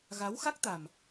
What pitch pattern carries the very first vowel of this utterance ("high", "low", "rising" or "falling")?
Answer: rising